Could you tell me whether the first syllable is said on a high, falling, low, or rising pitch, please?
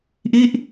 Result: falling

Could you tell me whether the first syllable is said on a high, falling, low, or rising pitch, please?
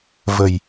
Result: low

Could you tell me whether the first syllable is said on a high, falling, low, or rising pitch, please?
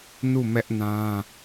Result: falling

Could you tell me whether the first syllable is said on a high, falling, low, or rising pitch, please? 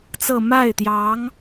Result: falling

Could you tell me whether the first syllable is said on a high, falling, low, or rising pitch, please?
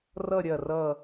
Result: falling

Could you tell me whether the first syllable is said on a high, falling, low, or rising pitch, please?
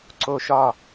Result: falling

